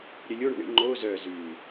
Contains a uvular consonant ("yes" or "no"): no